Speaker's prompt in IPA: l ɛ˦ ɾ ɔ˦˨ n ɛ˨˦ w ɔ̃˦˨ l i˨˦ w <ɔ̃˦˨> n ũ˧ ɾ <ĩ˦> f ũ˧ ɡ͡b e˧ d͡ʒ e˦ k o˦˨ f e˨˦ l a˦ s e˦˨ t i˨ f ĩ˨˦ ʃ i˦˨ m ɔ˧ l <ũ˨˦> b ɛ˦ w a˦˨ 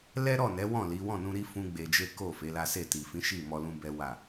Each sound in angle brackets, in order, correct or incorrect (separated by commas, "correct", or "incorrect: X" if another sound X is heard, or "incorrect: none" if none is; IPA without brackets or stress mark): correct, incorrect: i˦, incorrect: ũ˧